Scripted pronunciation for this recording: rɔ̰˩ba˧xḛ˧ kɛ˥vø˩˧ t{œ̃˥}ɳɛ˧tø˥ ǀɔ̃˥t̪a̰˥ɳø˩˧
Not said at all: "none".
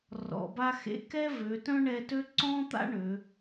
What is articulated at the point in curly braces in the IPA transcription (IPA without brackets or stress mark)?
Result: œ̃˥